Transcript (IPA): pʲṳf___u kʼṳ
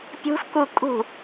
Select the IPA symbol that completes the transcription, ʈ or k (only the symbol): k